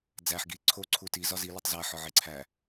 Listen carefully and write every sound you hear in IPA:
d͡z æ ħ ɡ i ǀʰ o ǀʰ u t i z ɒ z i l i tˤ z æ ħ ɒ ʕ e ǀʰ æ

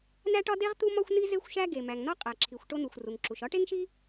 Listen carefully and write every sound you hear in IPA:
n æ˥ ʈ ɒ˥ d e˥ ʁ t̪ u˥ m ɒ˥ xʷ n i˥ z e˥ xʷ ʃ æ˥ ɡ e˩ m æ˩ ŋ n ɒ˥ qʼ æ˩ ǁʰ i˩ xʷ ʈ o˥ n u˩ xʷ r u˩ ŋ ǁ u˩ ʃ ɒ˥ ʈ e˥ ŋ ʃ i˥

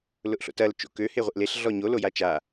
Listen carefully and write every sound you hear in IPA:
l ʊ ʔ ɬ o̰ t ɐ l t͡ʃ o̰ k ø h e ʁʷ ɪ ʔ l e ɬ ɮ ɔ ɲ o l o j a t͡ʃ a

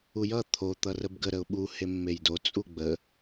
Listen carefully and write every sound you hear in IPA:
u j ʌ t̪ʰ o t̪ ʌ r ə b ɡ ə ɾ ə ʊ̯ ɓ u h e mː e j d o t͡sʼ u ɡ͡b ə

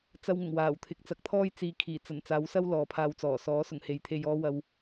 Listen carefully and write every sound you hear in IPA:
t͡s ɐ˧ w ŋ ʊ˨˩ ŋ w aː˨˩ w t̪ʰ ɪ˨˥ k̚ t͡s ɐ˨˥ k̚ t̪ʰ ɔː˥ j t͡s iː˨ kʰ iː˨˩ t͡s ɐ˨˩ n t͡s aː˨˥ w s ɐ˥ w l ɔː˨ pʰ aː˧ w t͡s ɔː˨˩ s ɔː˨˥ s ʊ˨˩ ŋ h e˨ j t̪ʰ e˧ j ɔː˥ w ɐ˧ w

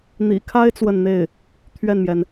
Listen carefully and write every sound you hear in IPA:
n̪ ḭ˨˩ kʰ a˥ ɪ̯ t͡s w ə˥˧ n n̪ e˥˩ ɪ̯ | t̪ʰ ɥ ɛ˥˩ n m j ɛ˩ n

